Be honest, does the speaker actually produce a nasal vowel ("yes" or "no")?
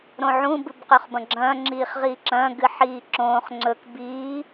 yes